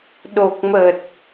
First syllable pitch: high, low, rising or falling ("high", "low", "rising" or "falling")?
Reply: low